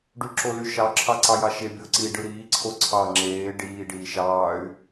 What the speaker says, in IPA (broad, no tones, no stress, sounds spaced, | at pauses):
ɖ y ǁ o l y ʃ ɑ ǁʰ ɑ ǀ ɑ j ɑ ʃ e bʲ o ǀ i ɖ ɯ ɾ iː ǀʰ o ǀʰ ɑ ŋ͡ǁ eː ɖ iː ɖ iː ʃ ɑː y̯